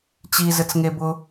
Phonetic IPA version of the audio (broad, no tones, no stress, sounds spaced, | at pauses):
t͡ɕ i z ɘ t͡s ŋ e b ʊ